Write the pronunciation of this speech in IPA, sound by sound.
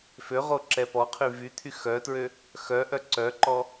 føʁo ǁɛpɔqʰy vyt̪ʰy xœtɹø | xœʔœ ǀœǃɔ

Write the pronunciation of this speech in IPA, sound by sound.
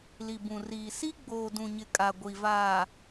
li˨bũ˨riː˨ si˦ɡ͡boː˨dũ˨ɲɪ˨ kʼa˨ɡʷi˨vaː˨

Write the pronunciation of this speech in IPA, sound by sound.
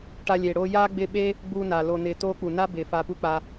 ʈa˧lʲeː˨ɽoː˧ jaː˦ɡ͡bɪ˧ɓe˦ | ɡ͡buː˧na˨ lo˨nɪː˨ toː˦ k͡pu˨na˦ bɪː˨ faː˧pu˦k͡pa˧

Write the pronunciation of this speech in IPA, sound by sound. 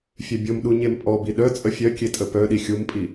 fʲœbʲomɗu ɲempʼɔbi ɗœt͡sʼə fʲœ kʲetʼəpœɗi xʲumpʼi

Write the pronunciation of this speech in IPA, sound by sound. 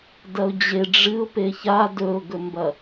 dɐʊ̯d͡ʑe ɖ͡ʐɨʊ̯ peça dɵʊ̯ɡɵmbɐ

